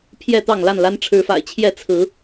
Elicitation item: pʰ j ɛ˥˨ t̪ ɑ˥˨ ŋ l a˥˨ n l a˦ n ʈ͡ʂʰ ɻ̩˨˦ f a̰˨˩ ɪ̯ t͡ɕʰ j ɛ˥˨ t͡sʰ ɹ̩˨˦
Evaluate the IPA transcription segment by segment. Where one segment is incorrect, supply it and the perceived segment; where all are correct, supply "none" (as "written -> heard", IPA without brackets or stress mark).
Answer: none